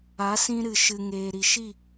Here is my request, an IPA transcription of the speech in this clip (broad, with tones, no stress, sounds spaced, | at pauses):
a˨˦ s ĩ˧ ɾ ɨ˨ ʃ ɨ˨ ŋ eː˨ ɾ i˨ ʃ i˦˨